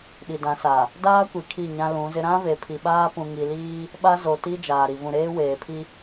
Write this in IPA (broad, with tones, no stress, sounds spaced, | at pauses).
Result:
ɗ i˨ d ã˨˦ s a˨ | d aː˦ kʷ i˨ kʰ i˦˨ ɲ ã˦ l ũ˨˦ z ɪ˦ ɾ ã˦ v e˨ pʰ i˨ ɓ aː˦ p ũ˨ ŋ i˨ l iː˦ | ɓ a˦ z o˨ t i˦ d͡ʒ aː˨ ɾ i˨ v ũ˨ ɾ eː˦ w eː˨ pʰ i˦